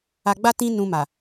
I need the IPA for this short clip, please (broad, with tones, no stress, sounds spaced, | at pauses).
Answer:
a˧ ɡ͡b a˦ t ĩ˦ n ũ˧ m a˨